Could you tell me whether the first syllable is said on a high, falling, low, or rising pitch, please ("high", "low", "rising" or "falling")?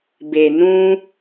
low